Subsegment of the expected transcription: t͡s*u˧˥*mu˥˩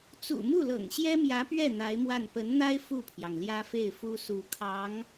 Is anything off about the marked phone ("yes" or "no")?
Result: yes